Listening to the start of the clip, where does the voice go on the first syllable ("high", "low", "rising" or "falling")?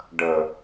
low